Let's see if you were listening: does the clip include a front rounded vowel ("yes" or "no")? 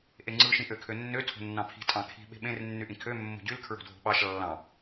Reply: yes